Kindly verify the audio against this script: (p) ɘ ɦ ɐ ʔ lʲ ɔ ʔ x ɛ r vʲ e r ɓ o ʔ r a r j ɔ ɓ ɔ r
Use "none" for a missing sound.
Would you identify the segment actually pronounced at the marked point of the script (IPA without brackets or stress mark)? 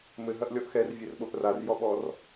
m